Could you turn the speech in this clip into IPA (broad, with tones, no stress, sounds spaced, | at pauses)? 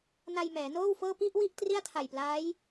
n a˧ j m ɛː˩˦ n oː˥˩ w f ɤː˥˩ p i˥˩ ʔ w i˥˩ ʔ t r i˥˩ a̯ tʰ a˨˩ j p l aː˦˥ j